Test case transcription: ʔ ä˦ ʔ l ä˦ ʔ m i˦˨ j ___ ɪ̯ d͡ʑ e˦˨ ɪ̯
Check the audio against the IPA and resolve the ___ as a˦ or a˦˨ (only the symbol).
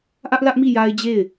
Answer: a˦